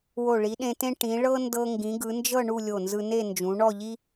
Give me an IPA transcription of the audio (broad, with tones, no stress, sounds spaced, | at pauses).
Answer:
w o˧˩ ɭ i˩˧ ɗ ẽ˧ t ẽ˥ ʈ ĩ˩˧ ɭ ɤ˥ n d ɤ˧ ŋ ɡ ĩ˩˧ ɡ ɯ˩˧ n d͡ʒ ɤ˥˧ ɳ u˥˧ lʲ o˧˩ n z ɯ˧ n e˥˧ n d͡ʒ ũ˩˧ ɳ ɔ˥˧ ʎ i˥